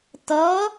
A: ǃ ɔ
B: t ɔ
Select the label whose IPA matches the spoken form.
B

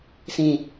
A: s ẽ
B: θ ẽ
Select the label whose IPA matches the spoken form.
A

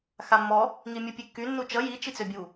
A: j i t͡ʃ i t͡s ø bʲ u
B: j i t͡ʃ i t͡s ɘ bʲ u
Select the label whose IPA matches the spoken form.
A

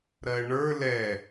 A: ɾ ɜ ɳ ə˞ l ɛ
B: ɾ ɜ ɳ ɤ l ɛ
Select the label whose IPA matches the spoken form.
A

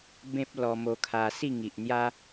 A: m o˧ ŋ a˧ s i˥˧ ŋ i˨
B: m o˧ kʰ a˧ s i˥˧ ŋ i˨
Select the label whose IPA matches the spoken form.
B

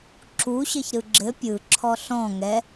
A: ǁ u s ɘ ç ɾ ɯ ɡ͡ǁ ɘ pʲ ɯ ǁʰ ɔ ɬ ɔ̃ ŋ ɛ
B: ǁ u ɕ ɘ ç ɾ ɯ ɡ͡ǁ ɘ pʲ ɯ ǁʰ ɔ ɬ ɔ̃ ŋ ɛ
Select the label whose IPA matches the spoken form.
B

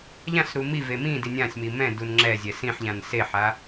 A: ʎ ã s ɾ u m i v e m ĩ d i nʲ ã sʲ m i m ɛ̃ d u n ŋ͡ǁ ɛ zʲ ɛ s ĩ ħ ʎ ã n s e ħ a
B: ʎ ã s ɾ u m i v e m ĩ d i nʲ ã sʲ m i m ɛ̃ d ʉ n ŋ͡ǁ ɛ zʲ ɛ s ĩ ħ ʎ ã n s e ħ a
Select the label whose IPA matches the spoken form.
A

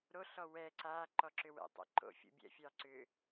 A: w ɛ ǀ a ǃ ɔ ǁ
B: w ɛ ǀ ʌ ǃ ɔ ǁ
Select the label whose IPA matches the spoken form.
A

